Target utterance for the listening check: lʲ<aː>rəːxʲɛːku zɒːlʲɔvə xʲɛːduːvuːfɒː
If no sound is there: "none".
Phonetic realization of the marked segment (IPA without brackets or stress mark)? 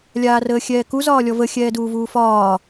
aː